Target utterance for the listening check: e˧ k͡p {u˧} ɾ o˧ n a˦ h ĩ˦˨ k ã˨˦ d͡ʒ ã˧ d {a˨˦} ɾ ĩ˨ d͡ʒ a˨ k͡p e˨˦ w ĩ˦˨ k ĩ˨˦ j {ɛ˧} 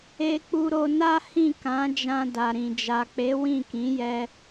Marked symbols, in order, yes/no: yes, no, yes

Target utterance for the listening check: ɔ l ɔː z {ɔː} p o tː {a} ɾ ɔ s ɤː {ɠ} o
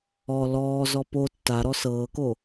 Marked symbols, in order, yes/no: no, yes, no

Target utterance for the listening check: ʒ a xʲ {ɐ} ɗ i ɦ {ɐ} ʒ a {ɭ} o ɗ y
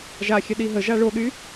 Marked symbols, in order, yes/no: yes, no, yes

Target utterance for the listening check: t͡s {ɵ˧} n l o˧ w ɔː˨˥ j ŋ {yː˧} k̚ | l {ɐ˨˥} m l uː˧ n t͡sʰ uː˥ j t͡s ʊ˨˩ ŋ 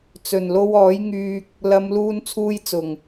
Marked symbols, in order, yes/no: no, yes, no

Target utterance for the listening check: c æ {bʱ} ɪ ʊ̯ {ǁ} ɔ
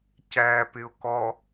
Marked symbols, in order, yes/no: no, no

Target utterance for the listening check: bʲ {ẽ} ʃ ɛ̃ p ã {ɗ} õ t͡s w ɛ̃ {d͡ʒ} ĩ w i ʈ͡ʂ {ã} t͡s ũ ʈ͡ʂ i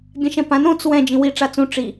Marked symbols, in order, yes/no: no, no, yes, no

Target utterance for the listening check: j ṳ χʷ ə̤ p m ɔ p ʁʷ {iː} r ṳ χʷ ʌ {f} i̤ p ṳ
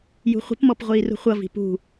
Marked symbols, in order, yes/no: yes, no

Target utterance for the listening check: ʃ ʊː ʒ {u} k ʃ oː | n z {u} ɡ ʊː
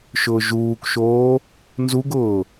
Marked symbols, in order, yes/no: no, yes

